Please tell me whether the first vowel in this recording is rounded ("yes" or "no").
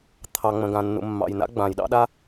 no